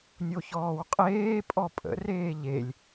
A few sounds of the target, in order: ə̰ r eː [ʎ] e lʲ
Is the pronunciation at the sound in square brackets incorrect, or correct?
correct